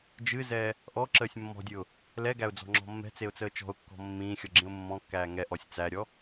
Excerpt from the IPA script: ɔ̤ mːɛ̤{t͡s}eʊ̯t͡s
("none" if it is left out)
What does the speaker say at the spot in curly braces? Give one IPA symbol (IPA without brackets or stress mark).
t͡s